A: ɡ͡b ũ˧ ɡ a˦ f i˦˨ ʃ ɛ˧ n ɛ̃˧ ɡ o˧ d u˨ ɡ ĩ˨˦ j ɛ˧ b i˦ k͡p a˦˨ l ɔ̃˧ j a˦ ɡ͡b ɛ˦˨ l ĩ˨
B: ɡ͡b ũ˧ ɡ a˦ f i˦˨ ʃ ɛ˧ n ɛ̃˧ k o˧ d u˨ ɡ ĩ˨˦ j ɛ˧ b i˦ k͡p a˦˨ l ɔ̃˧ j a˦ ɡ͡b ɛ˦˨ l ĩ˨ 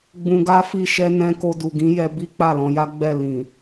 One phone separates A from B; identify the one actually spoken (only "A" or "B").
B